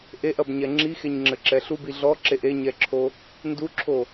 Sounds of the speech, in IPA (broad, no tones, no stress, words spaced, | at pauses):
ʔeʔɐbɲɛ ŋ͡ǁixeɲŋ͡ǁɘǁɛ ɬubi ɮɔǁeʔ eɲɛǁʰo | nduǁʰo